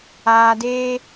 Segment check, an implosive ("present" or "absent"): absent